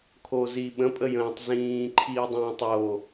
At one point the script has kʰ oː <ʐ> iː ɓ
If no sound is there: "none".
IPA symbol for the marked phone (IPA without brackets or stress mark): z